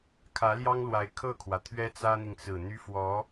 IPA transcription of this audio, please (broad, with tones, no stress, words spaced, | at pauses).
kʰä˧˥ljɑ˥ŋlwa˧˥ɪ̯ kʰɤ˥˩kʰwä˩ t̪ʰɥɛ˥t͡sä˥n̪i˨ŋt͡sɹ̩˨˩ n̪y˥ fwɔ˧˥